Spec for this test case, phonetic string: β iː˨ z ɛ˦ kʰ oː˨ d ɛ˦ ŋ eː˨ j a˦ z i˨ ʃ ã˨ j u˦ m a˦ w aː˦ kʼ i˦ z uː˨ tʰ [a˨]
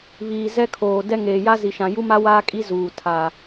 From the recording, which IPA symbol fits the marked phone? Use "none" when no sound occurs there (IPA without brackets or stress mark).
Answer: a˨